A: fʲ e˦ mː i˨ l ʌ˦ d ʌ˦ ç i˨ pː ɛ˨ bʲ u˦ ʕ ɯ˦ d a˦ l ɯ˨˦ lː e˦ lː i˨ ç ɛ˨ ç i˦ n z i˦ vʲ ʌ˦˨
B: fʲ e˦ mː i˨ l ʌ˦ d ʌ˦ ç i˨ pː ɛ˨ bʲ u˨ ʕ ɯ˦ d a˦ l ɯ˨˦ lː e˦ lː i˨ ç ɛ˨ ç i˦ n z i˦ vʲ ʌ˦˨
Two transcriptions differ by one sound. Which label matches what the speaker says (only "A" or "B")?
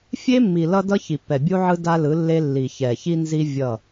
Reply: A